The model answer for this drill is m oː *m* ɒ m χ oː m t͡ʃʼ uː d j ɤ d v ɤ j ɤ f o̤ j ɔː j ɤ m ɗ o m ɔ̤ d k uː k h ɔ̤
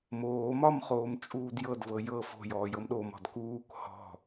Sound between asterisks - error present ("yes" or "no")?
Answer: no